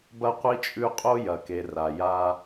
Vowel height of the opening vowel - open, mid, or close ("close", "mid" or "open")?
open